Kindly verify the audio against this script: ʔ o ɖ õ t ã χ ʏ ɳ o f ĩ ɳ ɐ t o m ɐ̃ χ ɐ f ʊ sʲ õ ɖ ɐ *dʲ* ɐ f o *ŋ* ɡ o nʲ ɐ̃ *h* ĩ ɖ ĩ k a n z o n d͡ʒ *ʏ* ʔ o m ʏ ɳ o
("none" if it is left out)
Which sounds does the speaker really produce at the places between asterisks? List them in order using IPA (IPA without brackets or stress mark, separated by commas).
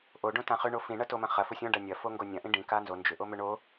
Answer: nʲ, ŋ, ʔ, ʏ